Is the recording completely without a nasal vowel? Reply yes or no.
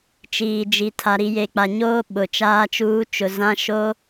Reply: no